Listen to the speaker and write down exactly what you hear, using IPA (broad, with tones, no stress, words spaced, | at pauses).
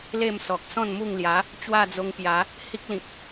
le˥˧msɔ˨k̚ sɔ̃˥˧nmu˥˧ŋlja˨˦ | t͡ɕwa˥˧d͡zo˧ŋpja˨˦ | hi˦k̚lĩ˨k̚